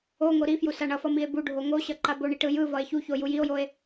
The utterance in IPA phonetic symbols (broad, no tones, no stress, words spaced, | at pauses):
oŋo ɾifju saɳʌfʌ mie̯buɖʱo ŋoɕʌ ǃaboɳi ʈɯjɯvʌe̯ çuço jujio̯joe̯